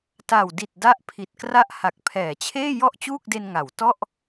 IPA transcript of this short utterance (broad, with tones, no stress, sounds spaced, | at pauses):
t a˨˩ w d i˨˩ t̚ d a˦˥ ʔ pʰ i˨˩ t̚ k r a˥˩ ʔ h a˨˩ k̚ pʰ ɛː˩˦ t͡ɕʰ eː˥˩ j ɔ˥˩ ʔ t͡ɕ uː˥˩ k̚ d e˧ n ŋ a˩˦ w t ɔ˥˩ ʔ